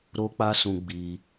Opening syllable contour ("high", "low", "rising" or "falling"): high